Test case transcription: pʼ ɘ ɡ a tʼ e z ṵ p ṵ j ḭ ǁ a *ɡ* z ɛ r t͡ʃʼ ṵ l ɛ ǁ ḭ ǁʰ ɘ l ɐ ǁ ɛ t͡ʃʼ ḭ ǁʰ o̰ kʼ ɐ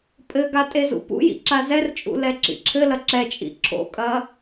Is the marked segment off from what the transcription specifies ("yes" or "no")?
yes